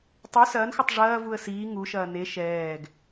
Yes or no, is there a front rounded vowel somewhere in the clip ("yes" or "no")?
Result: yes